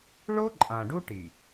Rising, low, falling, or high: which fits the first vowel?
high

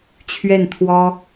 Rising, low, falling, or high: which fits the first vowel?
falling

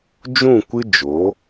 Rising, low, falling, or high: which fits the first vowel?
falling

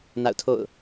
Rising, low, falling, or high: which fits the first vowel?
falling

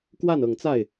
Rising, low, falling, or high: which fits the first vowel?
falling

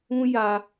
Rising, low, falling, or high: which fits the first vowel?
high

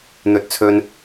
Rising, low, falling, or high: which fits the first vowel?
low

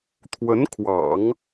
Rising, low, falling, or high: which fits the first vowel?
rising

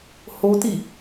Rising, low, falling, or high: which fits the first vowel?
high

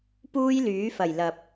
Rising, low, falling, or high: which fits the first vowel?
high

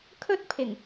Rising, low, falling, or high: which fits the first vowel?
high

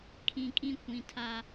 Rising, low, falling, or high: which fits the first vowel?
low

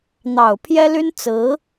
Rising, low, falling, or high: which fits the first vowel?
low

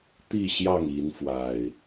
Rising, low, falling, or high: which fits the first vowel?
falling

